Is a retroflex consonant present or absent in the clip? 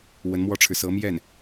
present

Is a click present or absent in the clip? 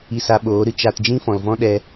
absent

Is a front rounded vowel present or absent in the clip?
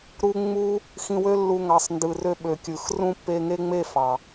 present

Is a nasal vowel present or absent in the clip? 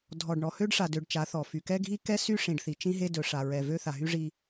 present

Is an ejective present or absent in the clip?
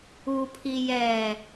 absent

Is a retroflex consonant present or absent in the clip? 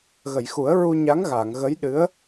absent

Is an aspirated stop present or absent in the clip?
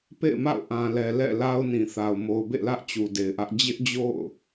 absent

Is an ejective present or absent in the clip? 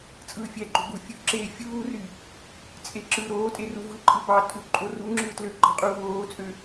present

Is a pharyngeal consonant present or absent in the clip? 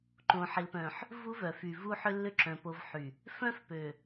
present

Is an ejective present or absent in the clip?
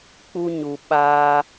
absent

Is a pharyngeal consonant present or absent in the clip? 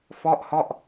absent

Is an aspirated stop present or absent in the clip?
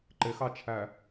present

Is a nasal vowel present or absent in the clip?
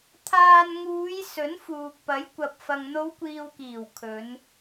absent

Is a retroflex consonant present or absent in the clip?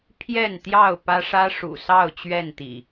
present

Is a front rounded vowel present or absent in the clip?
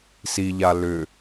present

